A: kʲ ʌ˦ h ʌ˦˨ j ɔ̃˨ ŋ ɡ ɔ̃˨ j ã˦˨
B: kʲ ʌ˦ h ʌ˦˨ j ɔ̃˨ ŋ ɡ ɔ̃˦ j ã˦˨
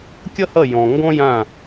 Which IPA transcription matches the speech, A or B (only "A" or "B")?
B